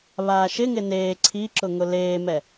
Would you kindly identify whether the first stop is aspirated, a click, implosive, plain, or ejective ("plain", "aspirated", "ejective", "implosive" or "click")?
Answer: click